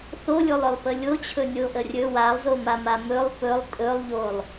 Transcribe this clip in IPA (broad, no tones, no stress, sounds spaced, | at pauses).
θ o lʲ o lˠ œ lˠ p ə lʲ o t͡ɕʰ ɵ nʲ o ʔ ə rʲ ɵ w a lˠ z o m a m a m ɵ lˠ p ɵ lˠ tʼ ɵ lˠ ʎ o lˠ